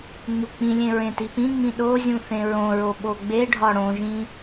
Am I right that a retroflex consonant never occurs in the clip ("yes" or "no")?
no